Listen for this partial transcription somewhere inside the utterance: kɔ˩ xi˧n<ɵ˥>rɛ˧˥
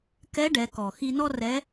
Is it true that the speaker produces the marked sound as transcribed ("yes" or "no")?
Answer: no